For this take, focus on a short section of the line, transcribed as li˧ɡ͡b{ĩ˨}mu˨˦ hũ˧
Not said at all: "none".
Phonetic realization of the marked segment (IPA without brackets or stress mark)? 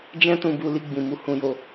ĩ˨